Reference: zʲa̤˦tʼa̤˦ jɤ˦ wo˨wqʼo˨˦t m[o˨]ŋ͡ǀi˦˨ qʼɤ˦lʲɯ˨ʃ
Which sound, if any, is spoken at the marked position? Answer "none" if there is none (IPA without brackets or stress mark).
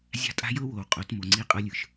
o˨